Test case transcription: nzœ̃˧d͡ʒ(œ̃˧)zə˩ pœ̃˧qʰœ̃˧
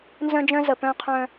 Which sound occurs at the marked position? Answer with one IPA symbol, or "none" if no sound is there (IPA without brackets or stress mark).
œ̃˧